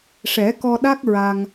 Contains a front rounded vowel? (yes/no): no